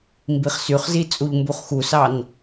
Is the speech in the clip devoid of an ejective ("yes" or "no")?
no